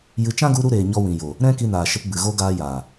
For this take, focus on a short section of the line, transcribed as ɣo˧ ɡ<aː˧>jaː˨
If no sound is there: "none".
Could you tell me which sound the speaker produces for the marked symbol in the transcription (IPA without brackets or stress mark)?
aː˧